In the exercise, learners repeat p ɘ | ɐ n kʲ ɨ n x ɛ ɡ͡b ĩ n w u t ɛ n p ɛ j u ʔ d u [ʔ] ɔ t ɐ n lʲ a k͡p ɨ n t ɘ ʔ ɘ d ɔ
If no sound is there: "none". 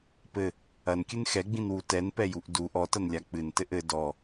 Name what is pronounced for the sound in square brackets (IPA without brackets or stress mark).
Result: ʔ